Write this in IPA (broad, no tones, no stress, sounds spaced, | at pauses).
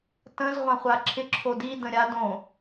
t ə̃ z ʁʷ ã χʷ a ǁʰ ɪ ǁʰ o d i d ə̃ ɾʲ a d õ